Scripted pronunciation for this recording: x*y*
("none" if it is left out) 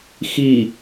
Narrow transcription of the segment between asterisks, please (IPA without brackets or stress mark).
i